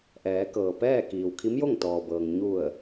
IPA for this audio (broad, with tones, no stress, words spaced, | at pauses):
ʔɛː˩˧kɤː˩ pɛː˥˨kiː˩w kʰi˧˥mjo˥˨ŋt̪ɔː˩bɤː˩ŋ ɲu˧˩ə̯